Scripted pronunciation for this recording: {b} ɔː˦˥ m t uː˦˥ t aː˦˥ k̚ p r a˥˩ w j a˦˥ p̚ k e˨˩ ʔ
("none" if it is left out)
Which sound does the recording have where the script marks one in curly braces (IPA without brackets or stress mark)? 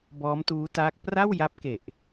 b